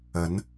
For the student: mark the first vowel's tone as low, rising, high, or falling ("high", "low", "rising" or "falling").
rising